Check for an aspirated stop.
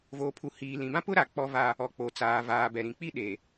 present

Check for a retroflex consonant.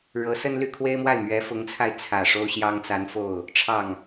present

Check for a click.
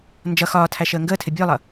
absent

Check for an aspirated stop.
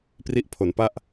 present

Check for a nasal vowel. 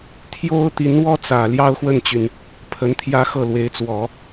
absent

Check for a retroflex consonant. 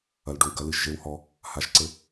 present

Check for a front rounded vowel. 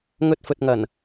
absent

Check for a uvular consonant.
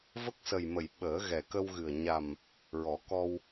absent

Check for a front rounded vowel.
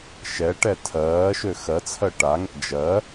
present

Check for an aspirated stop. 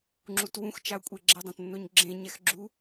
absent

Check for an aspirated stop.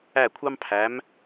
present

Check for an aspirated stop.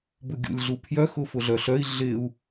present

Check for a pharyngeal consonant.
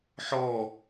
present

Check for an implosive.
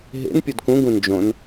absent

